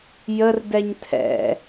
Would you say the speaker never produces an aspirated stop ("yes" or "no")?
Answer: no